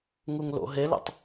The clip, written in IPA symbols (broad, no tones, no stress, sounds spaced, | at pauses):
ŋ u ŋ l o̰ ɦ e l ṵ tˤ